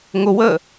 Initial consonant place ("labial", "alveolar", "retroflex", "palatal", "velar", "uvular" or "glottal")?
velar